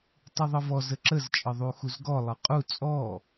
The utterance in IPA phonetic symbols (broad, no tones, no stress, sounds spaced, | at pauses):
tˤ u ðˤ ɤ v ɔ z ə ǁ ə z t͡ʃʼ ɤ ðˤ u x u z ɡ ɔ lˠ ɤ qʼ u t͡sʼ ɔ